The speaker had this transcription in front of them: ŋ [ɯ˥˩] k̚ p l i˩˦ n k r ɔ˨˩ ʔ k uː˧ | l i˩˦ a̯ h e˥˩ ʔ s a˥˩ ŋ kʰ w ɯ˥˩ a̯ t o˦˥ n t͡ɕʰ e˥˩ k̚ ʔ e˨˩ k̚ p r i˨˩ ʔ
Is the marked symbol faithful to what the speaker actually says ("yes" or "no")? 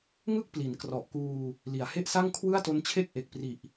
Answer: yes